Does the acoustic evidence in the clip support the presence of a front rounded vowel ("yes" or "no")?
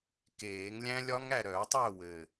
yes